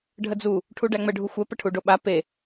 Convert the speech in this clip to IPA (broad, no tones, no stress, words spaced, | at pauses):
ɖʱəd͡zu | ʈʰuɖæŋ͡mə ɖʱuxʷɛ pəʈʰuɖoɓa pe